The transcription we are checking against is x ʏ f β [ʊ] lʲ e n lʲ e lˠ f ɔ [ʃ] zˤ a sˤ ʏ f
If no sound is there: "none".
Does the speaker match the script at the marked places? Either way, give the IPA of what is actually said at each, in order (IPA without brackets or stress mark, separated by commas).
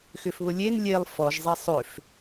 ʊ, ʒ